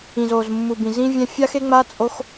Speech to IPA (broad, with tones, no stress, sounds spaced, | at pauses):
ĩ˨˩ z o˨˩ z mː u˨˩ b ĩ˨˩ z ĩ˧ vʲ ɛ̃˧ fʲ a˧ x e˧ ŋ͡m a˧ t͡sʼ o˧ x